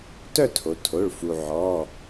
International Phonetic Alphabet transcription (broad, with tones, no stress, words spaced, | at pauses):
tœ˥˧tʰo˩˧tʰo˩˧˩ɭ fu˩ʕɔ˩˧˩